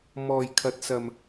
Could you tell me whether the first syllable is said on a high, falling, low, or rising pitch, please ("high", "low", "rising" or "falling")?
low